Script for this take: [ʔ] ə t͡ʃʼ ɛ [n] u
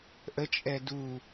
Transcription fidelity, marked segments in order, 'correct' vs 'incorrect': correct, incorrect

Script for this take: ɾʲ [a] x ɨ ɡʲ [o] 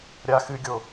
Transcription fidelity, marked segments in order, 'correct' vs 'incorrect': correct, correct

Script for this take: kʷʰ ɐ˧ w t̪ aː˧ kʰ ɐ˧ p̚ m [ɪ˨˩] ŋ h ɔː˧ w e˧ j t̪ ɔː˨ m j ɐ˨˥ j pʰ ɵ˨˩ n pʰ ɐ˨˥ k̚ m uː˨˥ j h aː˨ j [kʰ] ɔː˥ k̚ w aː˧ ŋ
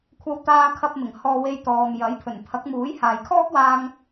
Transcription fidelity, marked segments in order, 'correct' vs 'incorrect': correct, correct

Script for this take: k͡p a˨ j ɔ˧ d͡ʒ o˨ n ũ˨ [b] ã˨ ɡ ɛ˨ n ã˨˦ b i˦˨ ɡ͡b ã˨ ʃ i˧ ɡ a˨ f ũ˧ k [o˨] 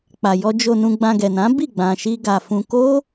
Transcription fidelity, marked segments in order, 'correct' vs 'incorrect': incorrect, incorrect

